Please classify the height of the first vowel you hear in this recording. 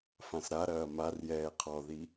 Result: low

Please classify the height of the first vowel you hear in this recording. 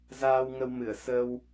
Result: low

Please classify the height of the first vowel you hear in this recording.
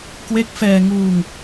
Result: mid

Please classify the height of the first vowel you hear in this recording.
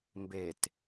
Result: mid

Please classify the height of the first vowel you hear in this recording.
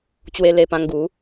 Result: mid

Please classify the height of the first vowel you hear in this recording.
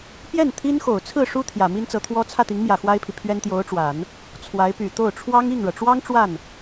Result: mid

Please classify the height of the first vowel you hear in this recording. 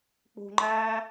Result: high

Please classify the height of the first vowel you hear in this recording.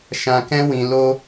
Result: low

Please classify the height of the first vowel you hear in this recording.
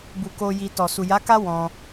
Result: high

